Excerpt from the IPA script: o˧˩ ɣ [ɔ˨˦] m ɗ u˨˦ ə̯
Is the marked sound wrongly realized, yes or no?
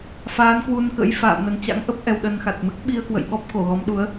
no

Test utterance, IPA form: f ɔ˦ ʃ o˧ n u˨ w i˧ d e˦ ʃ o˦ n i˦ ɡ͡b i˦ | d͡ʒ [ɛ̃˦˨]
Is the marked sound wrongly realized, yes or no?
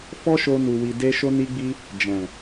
yes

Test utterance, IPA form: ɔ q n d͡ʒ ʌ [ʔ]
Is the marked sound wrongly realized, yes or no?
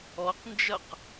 yes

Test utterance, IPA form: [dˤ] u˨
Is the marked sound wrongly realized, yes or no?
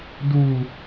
yes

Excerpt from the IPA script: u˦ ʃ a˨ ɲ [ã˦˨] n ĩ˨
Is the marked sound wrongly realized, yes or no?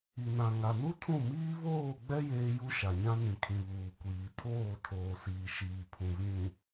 yes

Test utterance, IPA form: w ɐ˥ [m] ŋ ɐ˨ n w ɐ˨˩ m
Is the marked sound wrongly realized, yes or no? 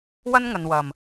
yes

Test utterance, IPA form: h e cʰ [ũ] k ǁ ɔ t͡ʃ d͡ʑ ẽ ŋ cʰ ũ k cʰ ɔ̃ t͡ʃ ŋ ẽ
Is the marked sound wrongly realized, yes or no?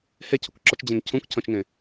yes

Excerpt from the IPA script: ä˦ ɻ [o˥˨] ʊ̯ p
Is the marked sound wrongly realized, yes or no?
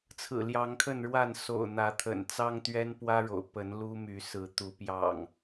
yes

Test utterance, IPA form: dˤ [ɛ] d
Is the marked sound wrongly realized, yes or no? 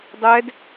no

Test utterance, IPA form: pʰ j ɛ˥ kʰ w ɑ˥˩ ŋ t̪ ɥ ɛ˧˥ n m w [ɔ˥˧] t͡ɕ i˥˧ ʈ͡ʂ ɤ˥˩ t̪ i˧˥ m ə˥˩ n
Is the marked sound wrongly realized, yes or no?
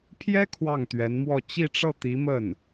no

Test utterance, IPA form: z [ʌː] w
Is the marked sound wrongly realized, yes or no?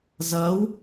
no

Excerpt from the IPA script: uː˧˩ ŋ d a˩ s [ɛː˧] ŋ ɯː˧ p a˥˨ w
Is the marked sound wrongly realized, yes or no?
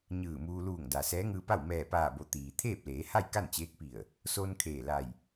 yes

